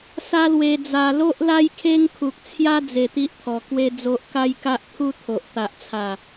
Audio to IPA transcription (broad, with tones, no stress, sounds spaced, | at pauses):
s a˦ l w e˧ d͡z a˨˩ l o˦ ʔ l a˦ j kʰ e˦ ŋ kʰ u˨ k̚ t͡sʰ j a˦ d͡z e˧ t̪ i˦ ʔ t̪ʰ ɔ˨˩ k w e˦ d͡z o˦ ʔ k a˦ j k a˦ ʔ t̪ʰ u˦ t̪ʰ o˨ ʔ t̪ a˦ ʔ t͡sʰ a˥˧